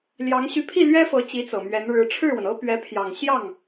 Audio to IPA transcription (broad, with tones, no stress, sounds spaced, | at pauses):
l j ɑ˧˥ ŋ ɕ y˧˥ pʰ i˥˩ l ɥ ɛ˥ f ɤ˧˥ t͡ɕ i˧˥ t͡s ɤ˨˩ m ɥ ɛ˧˥ n ɻ ɻ̩˧˥ ʈ͡ʂʰ ɻ̩˥˩ w ə˩ n ɤ˥ p ɥ ɛ˧˥ pʰ j ɑ˨˩ ŋ ɕ j ɑ˥˩ ŋ